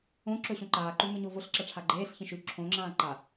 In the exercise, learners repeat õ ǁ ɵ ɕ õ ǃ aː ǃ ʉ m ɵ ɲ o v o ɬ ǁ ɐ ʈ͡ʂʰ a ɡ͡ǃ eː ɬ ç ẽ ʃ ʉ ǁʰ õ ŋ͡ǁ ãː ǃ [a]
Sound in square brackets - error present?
no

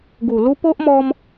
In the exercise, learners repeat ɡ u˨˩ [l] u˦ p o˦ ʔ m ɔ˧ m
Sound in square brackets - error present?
no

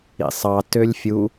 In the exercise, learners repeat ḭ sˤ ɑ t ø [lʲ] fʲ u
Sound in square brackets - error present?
no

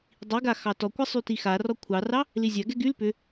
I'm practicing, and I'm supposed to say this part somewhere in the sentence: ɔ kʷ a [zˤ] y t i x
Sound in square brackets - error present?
yes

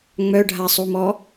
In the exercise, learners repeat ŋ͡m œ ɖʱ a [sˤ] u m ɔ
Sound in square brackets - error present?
no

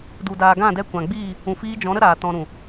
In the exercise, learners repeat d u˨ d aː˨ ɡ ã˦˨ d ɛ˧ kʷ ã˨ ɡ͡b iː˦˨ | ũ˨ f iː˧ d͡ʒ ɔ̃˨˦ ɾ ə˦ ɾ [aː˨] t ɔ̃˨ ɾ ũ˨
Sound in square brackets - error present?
no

